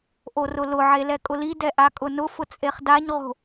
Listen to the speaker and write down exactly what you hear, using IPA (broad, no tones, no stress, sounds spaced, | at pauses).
ʔ o r ʊ l ʊ ʕ e l ɛ kʼ ʊ l i d ɛ ʔ a kʼ ʊ n ʊ f ʊ t͡sʼ e χ d a ɲ ʁ o̤